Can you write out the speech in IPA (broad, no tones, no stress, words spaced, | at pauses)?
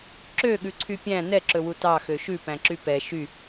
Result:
ǁøɠʉǀʰy pʲæ̃ nɛǁɵwu tɑxø ʃʉpæ̃ǁy pɛ ʃy